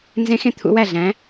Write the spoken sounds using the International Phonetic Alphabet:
n z ẽ˨˥ x ẽ˨ t̪ʰ ṵ˨˥ w æ˥˩ ɮ æ̃˨˥

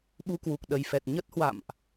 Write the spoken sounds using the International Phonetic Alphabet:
ɓ u˧ k w u˨˩ k̚ ɗ ə˨˩ j f ɛ˨˩ t̚ ɲ ə˦˥ t̚ h w a̰˧˨ m ʔ

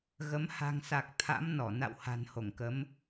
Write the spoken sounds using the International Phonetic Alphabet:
ɣ ə˨˦ m h a̤˨˩ ŋ s a˨˩ k̚ t̪ʰ a̰˧˥ m n ɔ˧˩ n a̰˧˨ w h a̤˨˩ n h o˧˩ ŋ k ə˨˦ m

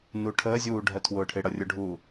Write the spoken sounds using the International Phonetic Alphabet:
n u ʈʰ əː zʲ uː ɖʱ ɜ tʰ w ʊː ʈʰ ɪ ɽ ʌ rʲ ʊ ɖʱ uː

